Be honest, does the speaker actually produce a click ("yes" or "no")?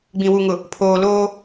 no